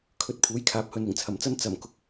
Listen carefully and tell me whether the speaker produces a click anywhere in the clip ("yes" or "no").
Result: no